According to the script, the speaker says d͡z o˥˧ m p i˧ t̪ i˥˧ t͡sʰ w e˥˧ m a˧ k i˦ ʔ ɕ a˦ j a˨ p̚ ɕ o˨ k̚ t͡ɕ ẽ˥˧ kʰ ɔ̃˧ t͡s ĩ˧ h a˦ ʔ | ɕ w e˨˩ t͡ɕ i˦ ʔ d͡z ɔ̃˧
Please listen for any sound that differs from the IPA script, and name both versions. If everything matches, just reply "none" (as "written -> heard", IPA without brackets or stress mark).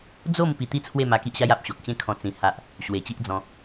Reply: none